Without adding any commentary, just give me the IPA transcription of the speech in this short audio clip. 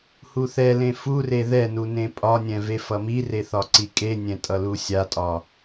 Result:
h u θ ɛ l ẽ f u r e ð ɛ n u n ẽ pʼ ɒ nʲ ɛ̃ v e f ʌ m i r e θ ɒ ǀ i kʼ e nʲ ɛ̃ tʼ ʌ l u sʲ a tʼ ɒ

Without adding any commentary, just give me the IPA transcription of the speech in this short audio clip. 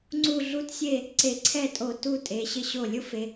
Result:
ŋ͡ǀ u˥˧ ɮ u˥ t sʲ e˥˧ | ǀ e˧˩ ǀʰ ɛ˥˧ tʼ o˧˩ t u˥˧ tʼ e˩˧ ɕ ɪ˧ ɕ o˧˩ lʲ ʊ˥ f e˩˧

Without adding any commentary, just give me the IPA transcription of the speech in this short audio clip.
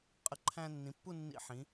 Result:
qʼ ə˧˩ ǃʰ æ̃ː˧ nː ĩ˩˧ pː u˥˧ nː ḭ˧ ħ ĩ˩˧

